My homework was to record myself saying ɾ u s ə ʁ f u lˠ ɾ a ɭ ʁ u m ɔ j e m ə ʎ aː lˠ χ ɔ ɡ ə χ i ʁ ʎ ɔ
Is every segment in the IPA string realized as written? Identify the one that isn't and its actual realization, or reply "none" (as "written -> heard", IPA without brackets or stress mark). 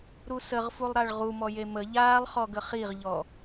none